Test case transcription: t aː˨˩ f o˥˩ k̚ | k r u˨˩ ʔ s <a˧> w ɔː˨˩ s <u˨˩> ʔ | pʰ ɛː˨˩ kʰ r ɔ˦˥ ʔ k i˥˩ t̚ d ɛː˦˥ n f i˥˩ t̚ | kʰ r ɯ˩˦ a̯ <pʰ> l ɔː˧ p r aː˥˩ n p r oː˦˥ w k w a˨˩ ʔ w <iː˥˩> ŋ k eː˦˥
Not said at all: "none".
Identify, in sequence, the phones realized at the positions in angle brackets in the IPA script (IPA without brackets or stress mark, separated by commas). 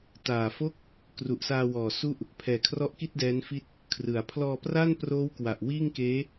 aː˧, u˥˩, pʰ, iː˥˩